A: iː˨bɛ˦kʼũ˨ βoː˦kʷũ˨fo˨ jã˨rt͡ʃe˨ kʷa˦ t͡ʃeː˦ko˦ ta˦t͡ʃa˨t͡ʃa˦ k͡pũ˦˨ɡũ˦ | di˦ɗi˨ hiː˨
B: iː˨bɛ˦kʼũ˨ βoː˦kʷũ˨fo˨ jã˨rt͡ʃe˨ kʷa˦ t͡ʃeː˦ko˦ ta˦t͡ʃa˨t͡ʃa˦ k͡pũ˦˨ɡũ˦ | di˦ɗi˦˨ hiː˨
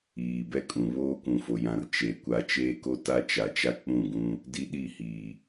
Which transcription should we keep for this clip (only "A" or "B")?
B